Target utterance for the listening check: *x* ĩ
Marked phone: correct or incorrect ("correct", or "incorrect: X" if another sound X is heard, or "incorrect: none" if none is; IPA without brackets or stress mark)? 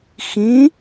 correct